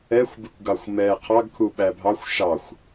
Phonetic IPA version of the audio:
ɛ xʷ b ɪ kʷ ɡ ɑ xʷ m ɛ qʰ ɑ ɡ kʰ u ɓ æ bʱ ɑ xʷ ʃ ɑ xʷ

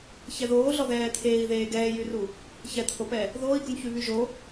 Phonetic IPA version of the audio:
ç ɛ ð oː ɮ ɔ ð ɛː t̪ʰ eː i̯ ð eː ɡ ɛː j y r u | ç ɛ t̪ʰ o p ɛ | ð oː i̯ ɡ u n ç y β y ʒ o

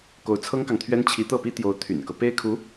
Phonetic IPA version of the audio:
k o˧˥ ʊ̯ t͡sʰ ɤ˥ ŋ k ɑ˨ ŋ t̪ʰ ɥ ɛ˥ n t͡ɕʰ i˧˥ t̪ ɤ˥˩ p i˥ t̪ j o˧˥ ʊ̯ t̪ʰ y̰˨˩ n k ɤ˦ p e˥ ɪ̯ kʰ u˧˥

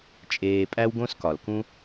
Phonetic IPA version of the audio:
t͡ʃʼ eː˨ pʼ æ˦ w ɡ õ˦ s k ɒ˩ l k ũ˦

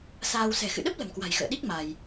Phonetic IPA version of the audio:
s aː˧ w s ɛ̤˨˩ x ɨ̰˧˨ ɗ ə˦˥ p̚ l ə̤˨˩ m k w a̤˨˩ j x ə̰ː˧˨ ɗ i˦˥ k̚ m a˧ j

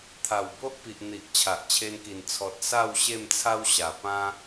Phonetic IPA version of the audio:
t̪ʰ a˨˩ w b o˦ ʔ p i˨ ʔ n̪ i˨ ʔ t͡ɕʰ a˨ ʔ t͡ɕʰ e˧ n k i˨˩ n t͡sʰ ɔ˨ t̚ s a˥˧ w ɕ e˥˧ m t͡sʰ a˦ w ɕ a˨˩ p ã˦

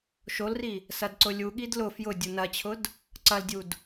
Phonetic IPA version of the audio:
ʃ o l r i | s ɐ d ǀ ʊ lʲ u ɠ i d l ʊ f j ʊ dʲ u n ɐ t͡ɕʰ ʊ d | ǀ ɐ l dʲ u d

